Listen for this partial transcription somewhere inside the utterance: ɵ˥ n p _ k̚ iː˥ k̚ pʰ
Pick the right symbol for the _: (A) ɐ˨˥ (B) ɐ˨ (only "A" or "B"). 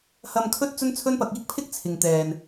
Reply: A